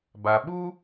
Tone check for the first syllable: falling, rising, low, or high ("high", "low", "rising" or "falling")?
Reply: low